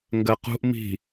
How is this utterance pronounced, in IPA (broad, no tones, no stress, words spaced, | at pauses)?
ŋɡɜqṳʔ mi̤